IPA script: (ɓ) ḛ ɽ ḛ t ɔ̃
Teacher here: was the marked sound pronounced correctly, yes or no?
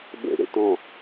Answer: yes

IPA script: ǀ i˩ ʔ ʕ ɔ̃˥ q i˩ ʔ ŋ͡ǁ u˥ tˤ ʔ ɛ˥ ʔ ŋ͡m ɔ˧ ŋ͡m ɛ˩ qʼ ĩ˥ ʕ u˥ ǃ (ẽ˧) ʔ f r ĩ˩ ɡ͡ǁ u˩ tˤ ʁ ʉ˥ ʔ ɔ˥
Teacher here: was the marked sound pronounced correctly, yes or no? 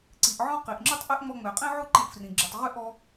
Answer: yes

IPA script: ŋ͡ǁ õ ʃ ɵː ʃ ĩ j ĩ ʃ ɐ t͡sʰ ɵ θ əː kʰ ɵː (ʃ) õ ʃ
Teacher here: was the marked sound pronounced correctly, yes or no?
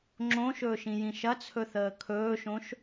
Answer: yes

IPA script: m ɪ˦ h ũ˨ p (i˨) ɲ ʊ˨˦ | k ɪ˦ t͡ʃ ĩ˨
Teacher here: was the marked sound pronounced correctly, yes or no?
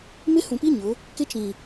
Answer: no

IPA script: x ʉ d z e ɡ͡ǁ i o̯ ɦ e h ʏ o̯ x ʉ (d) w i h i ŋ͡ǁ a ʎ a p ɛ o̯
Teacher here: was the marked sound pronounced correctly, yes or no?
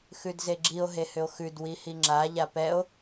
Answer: yes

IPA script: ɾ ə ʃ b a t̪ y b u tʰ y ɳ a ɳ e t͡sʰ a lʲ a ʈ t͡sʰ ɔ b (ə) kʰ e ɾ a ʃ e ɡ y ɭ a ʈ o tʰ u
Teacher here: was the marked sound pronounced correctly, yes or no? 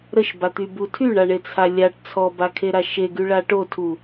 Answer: no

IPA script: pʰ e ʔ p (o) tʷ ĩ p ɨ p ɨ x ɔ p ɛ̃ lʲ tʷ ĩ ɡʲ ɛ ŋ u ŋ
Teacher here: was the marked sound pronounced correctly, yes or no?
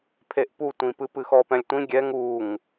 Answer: no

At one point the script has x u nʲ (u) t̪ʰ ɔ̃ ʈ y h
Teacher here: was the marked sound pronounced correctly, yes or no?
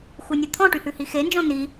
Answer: no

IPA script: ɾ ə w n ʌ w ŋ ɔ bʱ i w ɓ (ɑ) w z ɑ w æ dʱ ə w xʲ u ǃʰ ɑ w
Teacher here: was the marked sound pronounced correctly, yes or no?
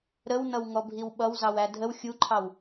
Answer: no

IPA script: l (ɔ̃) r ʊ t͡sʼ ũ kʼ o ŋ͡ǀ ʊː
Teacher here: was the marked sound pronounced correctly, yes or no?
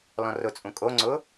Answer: yes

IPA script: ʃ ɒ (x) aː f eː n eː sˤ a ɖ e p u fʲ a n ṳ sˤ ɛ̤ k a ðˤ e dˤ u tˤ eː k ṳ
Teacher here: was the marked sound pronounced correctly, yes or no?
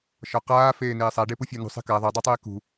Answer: no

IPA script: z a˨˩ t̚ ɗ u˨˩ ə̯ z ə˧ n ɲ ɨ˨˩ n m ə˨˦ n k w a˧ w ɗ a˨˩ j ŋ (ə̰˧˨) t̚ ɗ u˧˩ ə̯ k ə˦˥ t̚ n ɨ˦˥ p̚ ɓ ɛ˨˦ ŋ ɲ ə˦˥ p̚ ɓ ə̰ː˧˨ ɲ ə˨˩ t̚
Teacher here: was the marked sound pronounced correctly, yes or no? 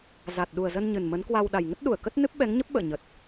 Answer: no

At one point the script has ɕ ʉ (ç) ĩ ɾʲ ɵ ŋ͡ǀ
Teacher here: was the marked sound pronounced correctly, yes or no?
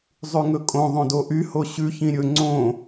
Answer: yes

